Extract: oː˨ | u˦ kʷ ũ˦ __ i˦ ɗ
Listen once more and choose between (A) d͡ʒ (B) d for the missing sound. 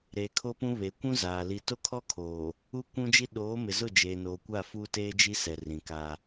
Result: A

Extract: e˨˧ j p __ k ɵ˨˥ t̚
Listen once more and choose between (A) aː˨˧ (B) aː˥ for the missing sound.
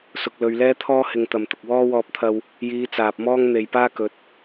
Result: B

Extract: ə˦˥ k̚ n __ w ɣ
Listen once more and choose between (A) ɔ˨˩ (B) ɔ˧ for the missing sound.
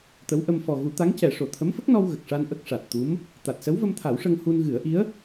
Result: B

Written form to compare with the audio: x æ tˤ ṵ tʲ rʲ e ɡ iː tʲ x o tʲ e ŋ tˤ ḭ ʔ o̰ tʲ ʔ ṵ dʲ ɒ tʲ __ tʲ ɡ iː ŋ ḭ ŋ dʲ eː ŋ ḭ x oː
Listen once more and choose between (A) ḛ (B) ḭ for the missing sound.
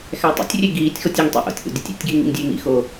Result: B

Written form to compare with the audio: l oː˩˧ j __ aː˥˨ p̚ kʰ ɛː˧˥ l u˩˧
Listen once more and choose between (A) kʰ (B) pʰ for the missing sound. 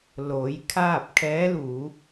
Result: A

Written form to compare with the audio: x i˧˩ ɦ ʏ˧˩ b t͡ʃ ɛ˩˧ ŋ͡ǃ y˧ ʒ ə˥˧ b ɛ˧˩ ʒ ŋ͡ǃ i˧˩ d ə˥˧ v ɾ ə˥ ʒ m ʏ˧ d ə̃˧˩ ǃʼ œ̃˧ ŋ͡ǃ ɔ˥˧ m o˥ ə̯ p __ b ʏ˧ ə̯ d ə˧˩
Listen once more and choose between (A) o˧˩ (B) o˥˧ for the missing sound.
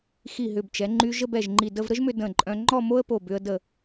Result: A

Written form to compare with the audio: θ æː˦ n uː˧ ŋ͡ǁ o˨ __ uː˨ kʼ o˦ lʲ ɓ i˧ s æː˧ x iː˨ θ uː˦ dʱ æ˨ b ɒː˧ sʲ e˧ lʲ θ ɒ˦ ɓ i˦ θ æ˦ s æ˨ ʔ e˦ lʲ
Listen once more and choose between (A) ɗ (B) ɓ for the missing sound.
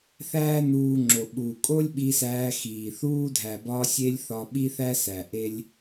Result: B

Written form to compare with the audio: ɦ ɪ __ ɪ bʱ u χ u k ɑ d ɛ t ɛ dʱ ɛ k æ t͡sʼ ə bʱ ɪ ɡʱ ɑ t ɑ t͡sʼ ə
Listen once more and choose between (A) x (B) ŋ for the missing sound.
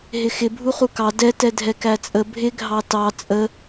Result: A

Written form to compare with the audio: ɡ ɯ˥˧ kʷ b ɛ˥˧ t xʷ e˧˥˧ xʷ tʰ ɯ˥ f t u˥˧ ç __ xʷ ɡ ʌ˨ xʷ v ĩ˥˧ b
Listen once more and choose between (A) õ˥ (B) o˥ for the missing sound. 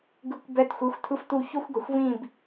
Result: B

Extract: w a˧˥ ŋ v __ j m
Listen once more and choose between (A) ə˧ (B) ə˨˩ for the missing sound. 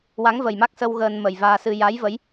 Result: B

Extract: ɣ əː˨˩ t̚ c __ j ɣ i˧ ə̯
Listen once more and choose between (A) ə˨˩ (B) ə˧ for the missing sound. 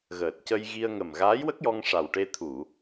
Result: B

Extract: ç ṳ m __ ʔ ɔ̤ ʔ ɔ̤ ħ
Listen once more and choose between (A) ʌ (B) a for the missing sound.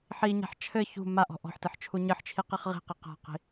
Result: B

